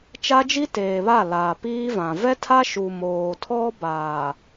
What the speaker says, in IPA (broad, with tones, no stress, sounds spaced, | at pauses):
t͡ʃ a˦ d͡ʒ i˦ t eː˨ β a˦˨ l aː˨ p iː˦ v ã˨ v ɛ˦ tʰ a˦ ʃ u˨ m oː˨ tʰ ɔ˦ b aː˨